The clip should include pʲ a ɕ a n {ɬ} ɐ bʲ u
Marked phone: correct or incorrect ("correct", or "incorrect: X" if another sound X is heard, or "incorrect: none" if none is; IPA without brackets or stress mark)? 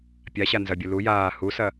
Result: incorrect: z